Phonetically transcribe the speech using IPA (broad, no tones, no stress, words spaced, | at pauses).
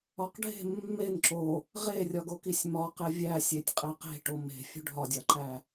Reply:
ɒqɖʱe̤ mːen ǁo | ʁerʲɒɡokisʲ mɒ qevʲæ sʲetʲqʼeqe̤ ʈome̤ fʲṳɖʱɒdʲɒǃæ